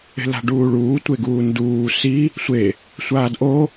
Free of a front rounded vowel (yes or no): yes